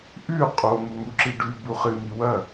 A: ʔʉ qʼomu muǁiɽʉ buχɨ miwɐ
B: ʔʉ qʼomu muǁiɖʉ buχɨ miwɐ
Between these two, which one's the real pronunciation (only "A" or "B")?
B